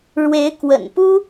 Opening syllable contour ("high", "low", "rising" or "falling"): rising